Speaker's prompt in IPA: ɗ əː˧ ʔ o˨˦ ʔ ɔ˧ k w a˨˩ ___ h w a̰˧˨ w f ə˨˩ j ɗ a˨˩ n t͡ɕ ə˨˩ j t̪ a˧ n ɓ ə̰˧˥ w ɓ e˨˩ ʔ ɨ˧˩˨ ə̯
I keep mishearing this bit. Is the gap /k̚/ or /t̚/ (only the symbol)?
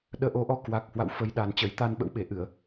k̚